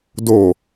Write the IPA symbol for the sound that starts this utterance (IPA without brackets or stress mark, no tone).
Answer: d